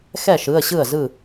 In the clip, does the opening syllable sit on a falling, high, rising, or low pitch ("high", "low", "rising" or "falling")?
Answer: falling